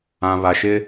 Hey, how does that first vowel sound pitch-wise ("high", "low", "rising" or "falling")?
low